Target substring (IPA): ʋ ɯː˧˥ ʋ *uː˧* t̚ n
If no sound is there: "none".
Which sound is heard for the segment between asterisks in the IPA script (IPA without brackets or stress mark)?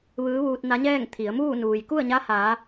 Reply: uː˧